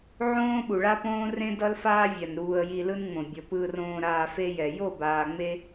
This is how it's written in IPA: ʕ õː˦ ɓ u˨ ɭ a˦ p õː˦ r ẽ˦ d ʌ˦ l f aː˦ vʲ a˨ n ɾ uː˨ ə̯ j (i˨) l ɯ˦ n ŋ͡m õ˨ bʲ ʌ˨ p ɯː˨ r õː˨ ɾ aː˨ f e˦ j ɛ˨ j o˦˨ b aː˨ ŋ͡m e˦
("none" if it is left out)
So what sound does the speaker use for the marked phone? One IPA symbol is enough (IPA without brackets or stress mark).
i˨